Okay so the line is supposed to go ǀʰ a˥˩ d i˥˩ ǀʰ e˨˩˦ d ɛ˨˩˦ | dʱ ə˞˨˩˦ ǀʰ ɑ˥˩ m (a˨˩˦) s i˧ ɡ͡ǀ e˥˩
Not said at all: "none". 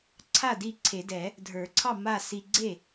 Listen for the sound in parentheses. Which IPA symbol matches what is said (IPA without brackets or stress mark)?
a˥˩